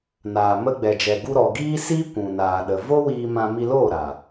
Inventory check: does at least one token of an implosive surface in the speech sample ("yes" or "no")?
yes